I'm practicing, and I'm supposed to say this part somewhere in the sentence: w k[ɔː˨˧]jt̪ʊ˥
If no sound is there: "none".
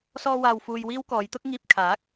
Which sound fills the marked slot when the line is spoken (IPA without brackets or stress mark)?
ɔː˨˧